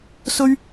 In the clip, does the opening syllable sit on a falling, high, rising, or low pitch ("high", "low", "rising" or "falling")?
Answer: high